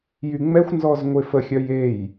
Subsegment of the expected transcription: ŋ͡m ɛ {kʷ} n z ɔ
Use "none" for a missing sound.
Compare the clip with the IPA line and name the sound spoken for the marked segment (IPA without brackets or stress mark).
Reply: xʷ